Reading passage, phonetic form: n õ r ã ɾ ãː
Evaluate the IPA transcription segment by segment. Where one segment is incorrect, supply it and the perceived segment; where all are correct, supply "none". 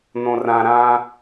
none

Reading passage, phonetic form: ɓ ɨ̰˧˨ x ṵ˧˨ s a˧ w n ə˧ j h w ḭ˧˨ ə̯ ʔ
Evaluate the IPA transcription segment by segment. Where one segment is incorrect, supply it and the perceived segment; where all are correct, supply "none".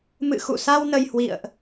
ɓ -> m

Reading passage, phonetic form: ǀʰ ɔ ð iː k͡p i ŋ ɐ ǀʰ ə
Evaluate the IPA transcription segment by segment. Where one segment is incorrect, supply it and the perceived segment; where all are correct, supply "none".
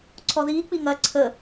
none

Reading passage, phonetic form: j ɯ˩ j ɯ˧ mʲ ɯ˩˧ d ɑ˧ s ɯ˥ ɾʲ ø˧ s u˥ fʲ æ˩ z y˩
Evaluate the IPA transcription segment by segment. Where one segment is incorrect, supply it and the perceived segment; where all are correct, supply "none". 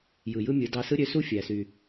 z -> s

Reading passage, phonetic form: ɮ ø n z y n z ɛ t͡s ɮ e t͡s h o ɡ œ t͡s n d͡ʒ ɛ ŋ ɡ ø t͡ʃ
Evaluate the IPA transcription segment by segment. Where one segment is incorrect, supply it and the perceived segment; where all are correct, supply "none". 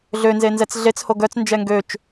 y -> e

